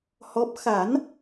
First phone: h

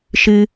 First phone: ʃ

